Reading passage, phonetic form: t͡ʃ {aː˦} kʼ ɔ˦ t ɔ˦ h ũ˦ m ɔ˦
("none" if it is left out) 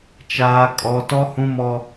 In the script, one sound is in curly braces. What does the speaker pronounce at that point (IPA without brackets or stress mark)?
aː˦